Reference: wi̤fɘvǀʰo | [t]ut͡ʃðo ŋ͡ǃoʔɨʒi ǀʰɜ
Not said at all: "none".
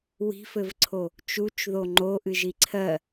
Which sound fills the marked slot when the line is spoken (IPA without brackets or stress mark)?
t͡ʃ